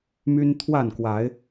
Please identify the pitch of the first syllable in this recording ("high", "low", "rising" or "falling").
high